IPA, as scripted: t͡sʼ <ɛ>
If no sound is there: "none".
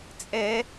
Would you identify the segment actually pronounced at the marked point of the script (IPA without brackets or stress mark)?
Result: ɛ